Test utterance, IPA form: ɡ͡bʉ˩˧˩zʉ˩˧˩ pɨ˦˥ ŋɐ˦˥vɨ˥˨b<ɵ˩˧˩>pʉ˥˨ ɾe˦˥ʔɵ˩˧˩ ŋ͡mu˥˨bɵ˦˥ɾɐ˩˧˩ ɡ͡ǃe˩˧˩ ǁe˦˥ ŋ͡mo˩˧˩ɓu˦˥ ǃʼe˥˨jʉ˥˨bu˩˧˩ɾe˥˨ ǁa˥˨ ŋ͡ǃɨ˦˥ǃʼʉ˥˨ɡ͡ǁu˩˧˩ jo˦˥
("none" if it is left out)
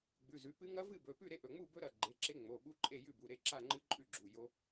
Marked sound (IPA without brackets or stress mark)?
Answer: ɵ˩˧˩